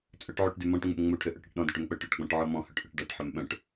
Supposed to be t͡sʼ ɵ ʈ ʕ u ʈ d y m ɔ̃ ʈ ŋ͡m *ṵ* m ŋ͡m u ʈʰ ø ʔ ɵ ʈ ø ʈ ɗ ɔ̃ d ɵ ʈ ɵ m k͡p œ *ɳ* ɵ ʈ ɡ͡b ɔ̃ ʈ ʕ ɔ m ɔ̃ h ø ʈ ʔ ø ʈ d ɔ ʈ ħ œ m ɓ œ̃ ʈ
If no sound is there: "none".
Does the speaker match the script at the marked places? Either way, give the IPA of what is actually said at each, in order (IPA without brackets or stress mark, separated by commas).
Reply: ṵ, ʈ